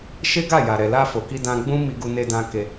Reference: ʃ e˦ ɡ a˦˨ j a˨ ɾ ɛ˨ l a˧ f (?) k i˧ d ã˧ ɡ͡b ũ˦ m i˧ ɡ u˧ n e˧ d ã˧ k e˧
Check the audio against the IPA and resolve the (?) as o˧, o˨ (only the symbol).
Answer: o˨